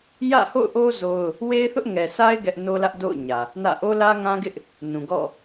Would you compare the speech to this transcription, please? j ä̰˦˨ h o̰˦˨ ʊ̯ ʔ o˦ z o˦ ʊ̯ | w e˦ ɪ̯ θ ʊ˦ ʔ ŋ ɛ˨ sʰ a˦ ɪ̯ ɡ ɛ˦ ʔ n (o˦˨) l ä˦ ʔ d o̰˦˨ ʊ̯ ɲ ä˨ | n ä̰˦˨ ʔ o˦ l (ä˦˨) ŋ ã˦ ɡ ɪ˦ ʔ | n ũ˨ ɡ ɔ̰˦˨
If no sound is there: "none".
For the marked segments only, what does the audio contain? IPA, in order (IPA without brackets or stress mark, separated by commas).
o˦, ä˦